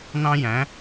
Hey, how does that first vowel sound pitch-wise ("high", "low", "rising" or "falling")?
high